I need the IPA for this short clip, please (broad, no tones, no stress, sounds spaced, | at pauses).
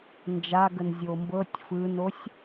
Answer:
n d͡ʒ a ɡ ə n zʲ o m b ɤ tʲ f ɯ n o sʲ